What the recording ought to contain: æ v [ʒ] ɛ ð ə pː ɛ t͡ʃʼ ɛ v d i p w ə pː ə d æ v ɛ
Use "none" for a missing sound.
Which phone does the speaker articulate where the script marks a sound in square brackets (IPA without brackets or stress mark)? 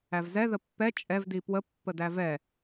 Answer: z